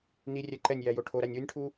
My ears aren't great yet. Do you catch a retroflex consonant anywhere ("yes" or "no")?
yes